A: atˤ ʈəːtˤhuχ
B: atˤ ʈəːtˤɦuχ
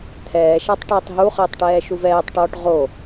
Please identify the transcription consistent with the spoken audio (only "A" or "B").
B